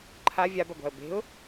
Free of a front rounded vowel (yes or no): yes